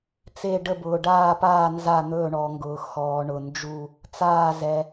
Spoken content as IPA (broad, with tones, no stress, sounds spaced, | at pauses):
t͡s e˧˩ ɖ ə˧˩ b ʊː˩ ɖ aː˧˩ p aː˧˩ n z a˧˩ n̪ ɵː˧˩ ɳ ɔ˩ ŋ ɡ ʊː˩ x ɔː˩ ɳ ʊ˩ n d͡ʒ u˧˩ | t͡s aː˧˩ z ɛ˩